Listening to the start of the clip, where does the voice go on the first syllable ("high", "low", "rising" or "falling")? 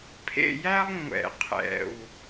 falling